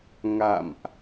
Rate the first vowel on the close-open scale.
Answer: open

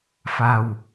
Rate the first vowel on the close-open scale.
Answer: open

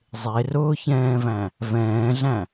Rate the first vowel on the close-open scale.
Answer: mid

